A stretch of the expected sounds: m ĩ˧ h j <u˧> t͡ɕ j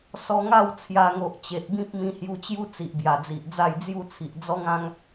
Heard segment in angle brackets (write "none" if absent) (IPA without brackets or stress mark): u˧